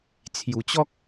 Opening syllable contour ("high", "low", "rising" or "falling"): low